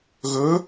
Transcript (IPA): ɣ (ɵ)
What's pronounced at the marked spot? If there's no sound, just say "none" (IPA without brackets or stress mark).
ɵ